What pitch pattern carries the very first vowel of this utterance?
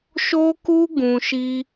high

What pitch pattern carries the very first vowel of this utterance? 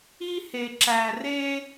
high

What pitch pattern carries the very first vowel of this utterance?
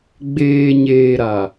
low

